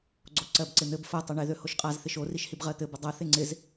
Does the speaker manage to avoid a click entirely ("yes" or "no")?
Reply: no